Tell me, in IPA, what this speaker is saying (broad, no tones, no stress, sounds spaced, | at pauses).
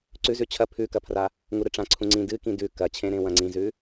ǀ ʉ z ʉ t͡ɕʰ ɐ pʰ ʉ k ɐ pʰ r a | ŋ u ɾ ɨ ʈ͡ʂ ã ǀʰ ũ ŋ͡ǀ ĩ d ɨ k ĩ d ʉ k ɐ t͡ɕʰ ẽ ɾ ẽ w ɐ̃ ŋ͡ǀ ĩ z ʉ